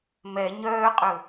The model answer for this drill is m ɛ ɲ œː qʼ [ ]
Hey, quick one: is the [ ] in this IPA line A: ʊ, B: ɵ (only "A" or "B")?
B